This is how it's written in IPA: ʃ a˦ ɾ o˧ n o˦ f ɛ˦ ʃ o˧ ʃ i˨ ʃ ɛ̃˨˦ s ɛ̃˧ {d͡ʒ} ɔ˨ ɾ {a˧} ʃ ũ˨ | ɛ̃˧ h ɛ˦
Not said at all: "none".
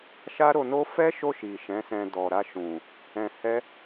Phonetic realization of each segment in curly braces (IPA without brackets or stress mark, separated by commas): d, a˧